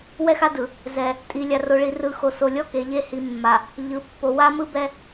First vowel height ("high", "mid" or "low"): mid